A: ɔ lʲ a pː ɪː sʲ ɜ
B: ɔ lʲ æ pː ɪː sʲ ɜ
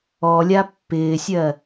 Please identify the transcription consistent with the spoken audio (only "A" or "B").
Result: A